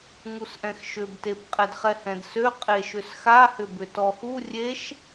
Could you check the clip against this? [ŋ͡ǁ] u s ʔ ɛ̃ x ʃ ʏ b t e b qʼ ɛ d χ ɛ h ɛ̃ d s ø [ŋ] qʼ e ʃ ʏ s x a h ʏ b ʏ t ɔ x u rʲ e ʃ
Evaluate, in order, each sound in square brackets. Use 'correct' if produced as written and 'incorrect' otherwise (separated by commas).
incorrect, incorrect